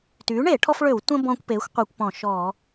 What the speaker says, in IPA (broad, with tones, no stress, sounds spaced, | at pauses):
t yː˩˥ ɳ eː˧˩˧ ʈʰ ɔ˦ f ɭ ø˧˩˧ w tʷ ə̃˦ b ɔ̃ː˦ kʷ p eː˩˥ xʷ qʷ e˧˩˧ kʷ p ɔ̃˧˩˧ ʃ ɔ˧˩˧